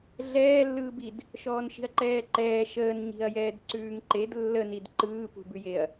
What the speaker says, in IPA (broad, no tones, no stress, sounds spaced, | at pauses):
ɮ ɛː lː ɯː b i d | ʃ ɔː n ʃ i̤ ɐ̯ ǃ ɛː ǃ ɛː ʃ əː n ɲ i̤ ɐ̯ j ɛː d ǀ ʉː ŋ ǃ e d lː ə n i d ǃ ɯː p ṳ b ʉ j e ɐ̯